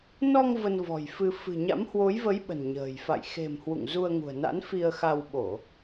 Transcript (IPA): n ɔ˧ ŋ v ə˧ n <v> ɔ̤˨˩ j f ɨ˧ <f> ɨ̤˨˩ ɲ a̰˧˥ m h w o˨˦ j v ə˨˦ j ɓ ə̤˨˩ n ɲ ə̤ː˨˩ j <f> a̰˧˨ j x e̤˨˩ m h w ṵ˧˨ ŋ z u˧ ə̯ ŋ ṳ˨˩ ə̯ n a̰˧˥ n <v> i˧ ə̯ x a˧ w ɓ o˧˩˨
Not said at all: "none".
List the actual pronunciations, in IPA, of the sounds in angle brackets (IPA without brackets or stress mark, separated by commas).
v, f, f, f